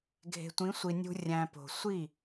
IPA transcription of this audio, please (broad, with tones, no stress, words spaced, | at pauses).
ɡʱe̤˨tʷĩ˨˦sʷi˨ nʲṳ˨ rʲæ̃˨po̤˨ sʷi˦˨